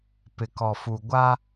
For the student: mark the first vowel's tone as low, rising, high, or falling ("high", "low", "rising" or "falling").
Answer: low